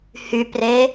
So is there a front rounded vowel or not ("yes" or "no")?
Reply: yes